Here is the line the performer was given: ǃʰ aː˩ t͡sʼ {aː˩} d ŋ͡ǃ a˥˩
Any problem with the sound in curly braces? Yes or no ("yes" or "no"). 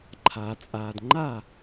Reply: no